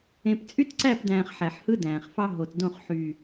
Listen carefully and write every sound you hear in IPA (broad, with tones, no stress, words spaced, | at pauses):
ẽ˨p t͡sʼy˦tǀæ˦˨pdæ̃ː˨χ ħæ˨ħhɯ˦ dæ̃ː˨χfɑ˦ ɦo˨tdõ˦˨χ ħy˨